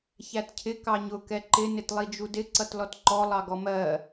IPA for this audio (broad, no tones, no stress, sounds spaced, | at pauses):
ç æ t cʰ ɪ k ɑ ɲ ʊ k ɛ ǃ ɪ n ɪ t lˠ i d͡ʒ u d ɪ ǀ ʌ t l ɔ t ǃ ɔ lˠ ɑ ɡ ɔ m ɜ